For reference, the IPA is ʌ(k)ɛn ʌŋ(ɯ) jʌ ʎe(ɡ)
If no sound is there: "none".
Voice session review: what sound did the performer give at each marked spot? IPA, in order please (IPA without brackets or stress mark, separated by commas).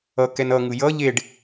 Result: k, ɯ, ɖ